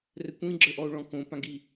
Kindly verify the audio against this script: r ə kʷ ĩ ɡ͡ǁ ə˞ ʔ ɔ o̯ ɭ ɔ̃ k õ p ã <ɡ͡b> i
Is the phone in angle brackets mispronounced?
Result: yes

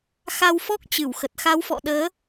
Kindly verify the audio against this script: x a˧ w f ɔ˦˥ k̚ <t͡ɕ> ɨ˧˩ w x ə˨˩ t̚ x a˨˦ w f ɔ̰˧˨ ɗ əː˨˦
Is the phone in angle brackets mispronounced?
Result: no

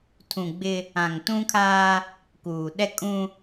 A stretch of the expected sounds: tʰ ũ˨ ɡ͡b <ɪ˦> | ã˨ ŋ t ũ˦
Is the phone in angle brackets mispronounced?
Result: no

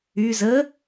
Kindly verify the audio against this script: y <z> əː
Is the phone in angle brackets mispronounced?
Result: no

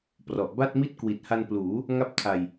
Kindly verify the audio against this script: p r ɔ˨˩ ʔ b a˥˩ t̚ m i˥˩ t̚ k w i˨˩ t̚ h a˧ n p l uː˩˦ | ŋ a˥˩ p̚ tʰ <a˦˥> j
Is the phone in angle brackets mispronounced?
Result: yes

